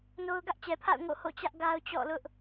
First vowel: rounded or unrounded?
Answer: rounded